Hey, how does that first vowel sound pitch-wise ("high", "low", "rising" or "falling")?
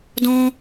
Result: high